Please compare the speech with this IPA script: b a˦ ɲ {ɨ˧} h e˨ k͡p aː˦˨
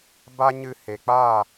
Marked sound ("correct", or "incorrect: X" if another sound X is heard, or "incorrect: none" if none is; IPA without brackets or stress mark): correct